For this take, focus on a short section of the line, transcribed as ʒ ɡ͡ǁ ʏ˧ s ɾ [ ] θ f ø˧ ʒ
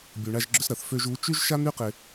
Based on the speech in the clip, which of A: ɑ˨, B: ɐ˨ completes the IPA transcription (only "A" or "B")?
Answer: B